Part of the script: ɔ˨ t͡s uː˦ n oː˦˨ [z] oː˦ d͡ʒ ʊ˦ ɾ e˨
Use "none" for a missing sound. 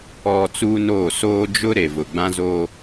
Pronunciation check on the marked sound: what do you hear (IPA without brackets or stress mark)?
s